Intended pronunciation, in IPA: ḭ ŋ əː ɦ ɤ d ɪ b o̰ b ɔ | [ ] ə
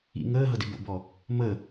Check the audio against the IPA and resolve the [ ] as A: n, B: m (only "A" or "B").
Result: B